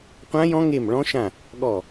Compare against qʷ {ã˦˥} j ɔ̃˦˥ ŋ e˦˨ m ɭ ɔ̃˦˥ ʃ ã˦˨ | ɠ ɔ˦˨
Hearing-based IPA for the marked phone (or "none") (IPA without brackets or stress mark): ã˦˥